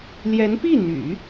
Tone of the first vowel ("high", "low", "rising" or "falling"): rising